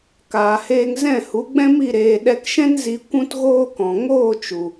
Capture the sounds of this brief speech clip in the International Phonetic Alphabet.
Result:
k aː˨ h eː˧ ŋ z ɛ̃˦˨ h u˨˦ ɡ͡b ɛ̃˦ m i˦˨ ɾ eː˧ ɗ ɛ˧ k ʃ ɛ̃˦ n z i˧ kʷ ũ˦ t ɣ oː˦ k ɔ̃˨ ŋ oː˦˨ t͡ʃ u˨

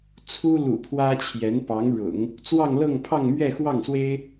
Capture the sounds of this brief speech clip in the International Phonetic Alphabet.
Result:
t͡sʰ u˥ l ṵ˨˩ pʰ w ä˥ t͡ɕʰ j ɛ˧˥ n p ɑ˧˥ ŋ ɻ ʊ̰˨˩˦ ŋ | t͡s w ɑ˥˧ ŋ l ɤ˥˧ ŋ pʰ ɑ˥˧ ŋ m ɥ ɛ˥˧ x w ɑ˥˩ ŋ s w e˥ ɪ̯

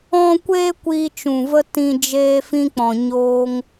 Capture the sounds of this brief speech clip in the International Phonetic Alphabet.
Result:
ɔ̃˦ kʷ eː˦ kʷ iː˧ t͡ʃ ũ˨ v ə˧ t ĩ˧ d͡ʒ eː˧ f ĩ˧ k͡p ɔ̃˨ ɲ oː˧ ŋ

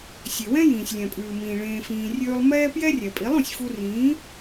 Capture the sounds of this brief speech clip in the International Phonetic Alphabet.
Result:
sʲ e˨ w ɛ̃˦ j ĩː˨ sʲ lʲ ɛ̃˨ pʼ ʉː˨ m ĩː˨ ɭ ẽː˧ f ĩː˧ rʲ ʉː˦ lˠ m ɛː˦ p j ɛ˦ rʲ ɛ˨ pʼ i˨˦ lˠ ũ˨ sʲ f u˧ r ĩː˨˦

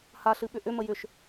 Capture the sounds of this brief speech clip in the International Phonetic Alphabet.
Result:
h a ɬ ɨ ɓ ʏ ʔ ʏ m ə j ʏ ʃ

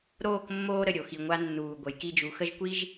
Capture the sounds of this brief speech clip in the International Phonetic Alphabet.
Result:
ɾ oː˦˨ k mː oː˦ ɾ ə˨ ɾʲ o˨ x i˨ ŋʷ a˦ nː uː˨ ɡʷ ə˨˦ j k i˦ d͡ʒ u˨˦ x ə˦ ʒ kʷ i˦ ʒ

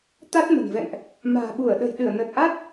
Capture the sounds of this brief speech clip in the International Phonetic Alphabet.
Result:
t̪ a˦˥ t̚ m ə̤˨˩ n v ɛ̰˧˨ ŋ ʔ | m a̤ː˨˩ ɓ u˧˩ ə̯ ɗ ə̤˨˩ j ɗ ɨ˧˩ ə̯ n ə˨˩ t̚ ʔ a˦˥ t̚

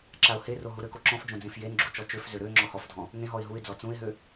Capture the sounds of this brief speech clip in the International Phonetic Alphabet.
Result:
ǁ a ʊ̯ h e r o ɦ u ɾ ø k o ǁ ɔ̃ f d͡ʒ õ d͡z ẽ f j e n ɡ͡ǁ u t͡ʃ ɔ t͡ʃ ø f z ø ɾ ø ŋ͡ǁ ɔ h ɔ f dʱ ɔ̃ | ŋ ẽ ɦ ɔ ɪ̯ ɦ u ɪ̯ d͡z ɔ t͡s ũ ɪ̯ ɦ ø

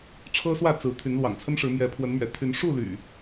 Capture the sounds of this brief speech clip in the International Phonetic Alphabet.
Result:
ʈ͡ʂʰ ɤ˦ s w ä˥˨ t͡s ɹ̩˨˦ t̪ʰ y˨˦ n l w ɑ̰˨˩ ŋ t͡sʰ ə˦ n ʂ ɻ̩˨˦ m j ɛ˨˦ pʰ w ə˨˦ n m ɥ ɛ̰˨˩ t̪ʰ y˨˦ n ʂ u˥˨ l y̰˨˩

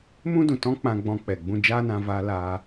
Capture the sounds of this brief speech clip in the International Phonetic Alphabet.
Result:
m ũ˦ d ũ˨ t ɔ̃˦ k͡p ã˧ ɡ͡b ɔ̃˧ k͡p ɛ˨ ɡ͡b ũ˧ d͡ʒ aː˦ n ã˧ v aː˦ l aː˦

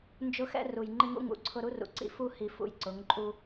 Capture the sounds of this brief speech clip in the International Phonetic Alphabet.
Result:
n d͡ʒ ʊ˦ x ɛ̰˦ r u˨ j ŋ͡ǃ ɪ˦ ŋ ṵ˦ ŋ ṵ˨˦ ǀʰ ʊ˦ ɾ u˦ r ṵ˨ ǀ ḭ˦ f u˦ h i˨ f ṵ˨ j ǀ ʊ˨˦ ŋ ǃʼ u˦

